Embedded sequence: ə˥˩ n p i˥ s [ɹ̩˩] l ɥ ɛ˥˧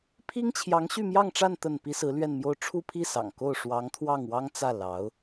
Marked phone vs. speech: incorrect: ɹ̩˧˥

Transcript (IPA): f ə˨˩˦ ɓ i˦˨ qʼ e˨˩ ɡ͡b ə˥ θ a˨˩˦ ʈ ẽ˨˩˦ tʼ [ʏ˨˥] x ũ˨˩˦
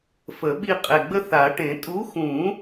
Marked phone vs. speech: incorrect: u˨˥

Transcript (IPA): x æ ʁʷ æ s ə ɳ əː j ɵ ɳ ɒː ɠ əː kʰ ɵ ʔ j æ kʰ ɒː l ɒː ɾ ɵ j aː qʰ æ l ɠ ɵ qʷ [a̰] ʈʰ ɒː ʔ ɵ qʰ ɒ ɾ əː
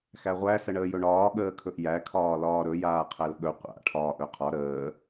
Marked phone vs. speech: correct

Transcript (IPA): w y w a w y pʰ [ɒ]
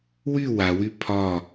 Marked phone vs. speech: correct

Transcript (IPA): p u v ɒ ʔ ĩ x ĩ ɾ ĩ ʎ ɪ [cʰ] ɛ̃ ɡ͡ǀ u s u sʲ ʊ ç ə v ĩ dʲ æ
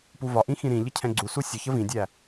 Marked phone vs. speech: correct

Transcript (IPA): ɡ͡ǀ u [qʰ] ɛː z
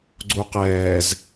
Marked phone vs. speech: incorrect: q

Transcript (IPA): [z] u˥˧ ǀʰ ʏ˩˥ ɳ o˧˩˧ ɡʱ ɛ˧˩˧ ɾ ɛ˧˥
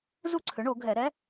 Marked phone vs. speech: correct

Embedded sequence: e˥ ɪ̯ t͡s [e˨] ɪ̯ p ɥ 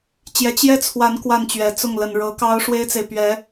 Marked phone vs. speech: correct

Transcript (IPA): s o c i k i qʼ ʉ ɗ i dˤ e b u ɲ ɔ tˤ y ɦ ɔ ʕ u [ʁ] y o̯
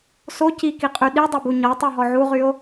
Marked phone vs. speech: correct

